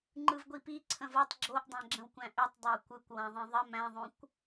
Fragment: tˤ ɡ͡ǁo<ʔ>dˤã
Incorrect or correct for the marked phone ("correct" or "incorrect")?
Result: correct